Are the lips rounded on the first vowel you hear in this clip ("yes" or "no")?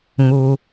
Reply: yes